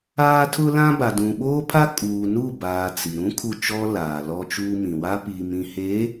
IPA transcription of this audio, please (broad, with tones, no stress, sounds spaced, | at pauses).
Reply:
aː˦ tʰ ʊ˦ l ã˦ b a˨ d ũ˨ ɓ oː˦ pʰ a˦ kʼ uː˨ n u˦˨ b aː˨ t͡s i˨ ɾ ũ˦ kʰ u˦˨ t͡ʃ ɔ˦ l aː˨ l ɔ˦ t͡ʃ uː˦ m ĩ˨ w a˦ p iː˨ m ĩ˨ h e˨˦